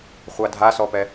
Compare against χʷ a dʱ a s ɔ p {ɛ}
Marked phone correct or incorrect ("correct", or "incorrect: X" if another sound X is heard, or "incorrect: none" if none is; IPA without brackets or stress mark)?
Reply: correct